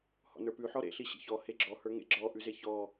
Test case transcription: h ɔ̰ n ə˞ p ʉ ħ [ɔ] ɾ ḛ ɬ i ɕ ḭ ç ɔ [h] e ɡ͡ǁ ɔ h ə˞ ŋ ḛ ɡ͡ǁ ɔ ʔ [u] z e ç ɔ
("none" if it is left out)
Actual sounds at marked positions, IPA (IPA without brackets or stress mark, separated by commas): ɔ, h, ʉ